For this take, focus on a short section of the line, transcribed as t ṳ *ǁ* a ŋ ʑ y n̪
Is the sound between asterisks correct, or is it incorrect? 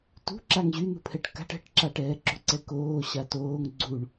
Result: correct